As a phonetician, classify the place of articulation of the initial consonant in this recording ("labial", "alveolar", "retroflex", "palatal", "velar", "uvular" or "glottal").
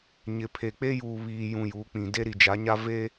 palatal